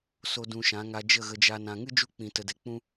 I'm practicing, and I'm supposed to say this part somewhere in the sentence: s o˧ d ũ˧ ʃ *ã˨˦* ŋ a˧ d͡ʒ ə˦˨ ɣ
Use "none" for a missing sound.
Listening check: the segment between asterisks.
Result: ã˨˦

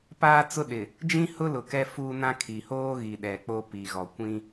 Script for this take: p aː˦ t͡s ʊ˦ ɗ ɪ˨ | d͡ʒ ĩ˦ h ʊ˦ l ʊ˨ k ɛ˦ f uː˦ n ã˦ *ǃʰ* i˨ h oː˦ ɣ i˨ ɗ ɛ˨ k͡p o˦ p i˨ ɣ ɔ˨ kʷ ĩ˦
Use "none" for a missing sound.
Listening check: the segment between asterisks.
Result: kʰ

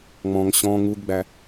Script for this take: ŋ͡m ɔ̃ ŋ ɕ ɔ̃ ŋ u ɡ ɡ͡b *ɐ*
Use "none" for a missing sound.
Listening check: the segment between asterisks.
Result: æ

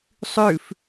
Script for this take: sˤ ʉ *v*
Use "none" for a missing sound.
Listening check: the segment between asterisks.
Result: f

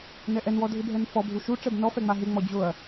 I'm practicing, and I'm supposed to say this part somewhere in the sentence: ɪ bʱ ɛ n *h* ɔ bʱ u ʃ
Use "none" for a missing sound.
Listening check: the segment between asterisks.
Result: f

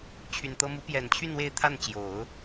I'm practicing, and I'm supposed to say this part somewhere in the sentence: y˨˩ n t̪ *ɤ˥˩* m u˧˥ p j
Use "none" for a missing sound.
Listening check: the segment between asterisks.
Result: ɤ˥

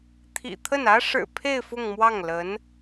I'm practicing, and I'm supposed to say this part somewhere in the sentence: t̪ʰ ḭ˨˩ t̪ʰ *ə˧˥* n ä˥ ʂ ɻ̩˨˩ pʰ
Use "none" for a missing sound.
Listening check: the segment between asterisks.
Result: ə˥˩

